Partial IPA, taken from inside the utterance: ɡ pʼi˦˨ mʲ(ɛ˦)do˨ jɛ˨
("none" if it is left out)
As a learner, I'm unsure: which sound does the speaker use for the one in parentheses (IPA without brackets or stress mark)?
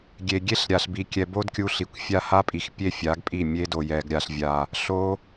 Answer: e˦